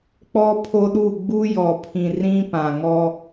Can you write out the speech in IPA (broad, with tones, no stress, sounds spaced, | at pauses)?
k͡p ɔ˦ pʰ o˦ ɗ u˦˨ ɡ͡b u˦ j ɔ˨ pʰ ĩ˨ r ĩ˦ p ã˨ ŋ ɔ˦